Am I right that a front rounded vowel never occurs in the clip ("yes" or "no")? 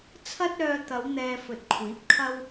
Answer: no